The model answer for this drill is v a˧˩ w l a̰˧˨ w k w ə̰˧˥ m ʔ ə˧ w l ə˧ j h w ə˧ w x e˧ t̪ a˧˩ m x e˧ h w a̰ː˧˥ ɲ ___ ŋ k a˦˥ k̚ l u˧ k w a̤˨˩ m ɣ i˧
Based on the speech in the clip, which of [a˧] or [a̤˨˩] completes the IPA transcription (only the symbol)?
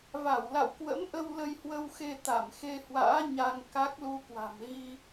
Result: a˧